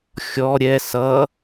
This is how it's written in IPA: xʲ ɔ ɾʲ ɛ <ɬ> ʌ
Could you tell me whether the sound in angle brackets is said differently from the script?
yes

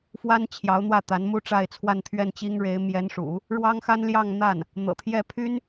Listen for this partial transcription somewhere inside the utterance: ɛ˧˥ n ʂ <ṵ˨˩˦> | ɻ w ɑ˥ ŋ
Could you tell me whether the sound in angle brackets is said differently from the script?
no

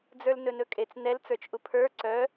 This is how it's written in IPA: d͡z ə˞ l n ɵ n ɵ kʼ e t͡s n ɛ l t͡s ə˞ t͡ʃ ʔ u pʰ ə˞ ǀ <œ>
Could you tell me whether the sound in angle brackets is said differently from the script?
no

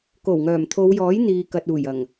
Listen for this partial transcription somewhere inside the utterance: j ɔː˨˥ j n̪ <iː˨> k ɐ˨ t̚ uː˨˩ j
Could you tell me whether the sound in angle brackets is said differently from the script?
no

